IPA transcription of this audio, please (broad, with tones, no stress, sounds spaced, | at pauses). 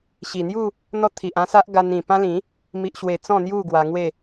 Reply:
ɕ i˨˩ n̪ j u˥˧ | n̪ ɔ˦ t̪ʰ i˨ ʔ ã˦ s a˦ ʔ ɡ a˧ n ĩ˨˩ p ã˦ l ĩ˨˦ | m i˨ ʔ ɕ w e˨˩ t͡s ɔ̃˥˧ n̪ j u˥˧ ɡ w a˧ ŋ w e˥˧